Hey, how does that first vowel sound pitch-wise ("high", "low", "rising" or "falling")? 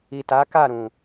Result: low